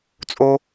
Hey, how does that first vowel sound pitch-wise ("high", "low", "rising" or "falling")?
high